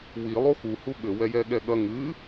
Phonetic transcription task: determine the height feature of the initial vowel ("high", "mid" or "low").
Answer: high